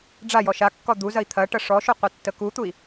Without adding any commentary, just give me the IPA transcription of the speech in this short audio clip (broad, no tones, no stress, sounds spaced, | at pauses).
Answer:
ɖ͡ʐ a j ɔ ʃ a kː ɔ d̪ u z ɐ i̯ t̪ʰ ɐ ʈ ɐ ʂ ɔ ʃ u qʷ ɐ tː ə k u t̪ u i̯